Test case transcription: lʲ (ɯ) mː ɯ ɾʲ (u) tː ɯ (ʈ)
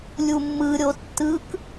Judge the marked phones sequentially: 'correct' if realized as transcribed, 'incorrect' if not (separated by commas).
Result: incorrect, incorrect, incorrect